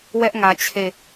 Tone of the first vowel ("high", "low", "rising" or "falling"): high